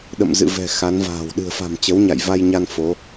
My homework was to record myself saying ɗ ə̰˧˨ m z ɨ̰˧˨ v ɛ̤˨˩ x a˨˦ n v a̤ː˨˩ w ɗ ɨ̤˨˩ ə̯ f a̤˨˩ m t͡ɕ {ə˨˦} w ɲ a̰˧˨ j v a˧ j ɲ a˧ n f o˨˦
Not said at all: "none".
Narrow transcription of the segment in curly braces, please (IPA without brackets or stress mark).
ə˨˦